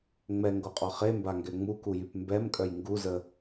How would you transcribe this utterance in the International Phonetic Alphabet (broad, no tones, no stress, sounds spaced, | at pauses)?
ŋ͡m ɛ ŋ ɡ o qʼ ɔ χ e m b a ŋ ɡ ɛ ŋ͡m u k u j y p m b ɛ m kʼ œ j ŋ ɡ u z ə